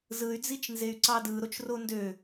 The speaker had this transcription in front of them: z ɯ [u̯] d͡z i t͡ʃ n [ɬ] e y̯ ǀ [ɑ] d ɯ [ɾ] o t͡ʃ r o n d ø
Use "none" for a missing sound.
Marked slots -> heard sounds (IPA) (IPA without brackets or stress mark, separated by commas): y̯, z, ɑ, ɾ